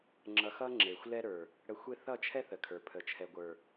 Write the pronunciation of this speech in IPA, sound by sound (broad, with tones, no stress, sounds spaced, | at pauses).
ŋ͡ǁ ʌ˧ x ʌ˦ ŋ͡ǁ e˨ xʷ l ɛ˦ ɾ ə˞˨ | ɽ ə˧ xʷ e˦ θ ʌ˦˨ t͡ʃʰ ɛ˦ θ ə˨ kʰ ə˞˨ pʰ ə˨ t͡ʃʰ ɛ˨ ɡʷ ə˞˨